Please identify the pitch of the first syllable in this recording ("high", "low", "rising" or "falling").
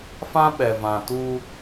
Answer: high